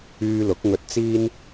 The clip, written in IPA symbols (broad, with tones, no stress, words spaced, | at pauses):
yː˧lʊ˨˥k̚ŋɵ˧t̚t͡siː˥n